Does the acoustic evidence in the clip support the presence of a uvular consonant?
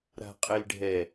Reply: yes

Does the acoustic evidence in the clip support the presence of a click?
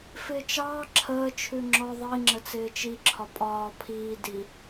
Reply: yes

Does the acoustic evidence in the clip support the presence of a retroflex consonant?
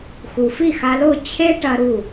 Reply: yes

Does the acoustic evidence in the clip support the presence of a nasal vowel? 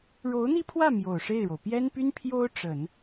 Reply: no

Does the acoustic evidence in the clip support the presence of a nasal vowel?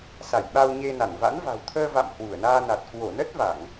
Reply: no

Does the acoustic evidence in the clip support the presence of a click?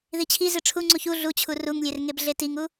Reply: yes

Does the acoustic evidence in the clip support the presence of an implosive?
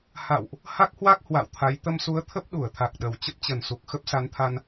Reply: yes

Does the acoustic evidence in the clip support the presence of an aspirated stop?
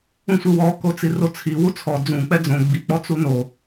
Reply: yes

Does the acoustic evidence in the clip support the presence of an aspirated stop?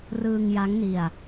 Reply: no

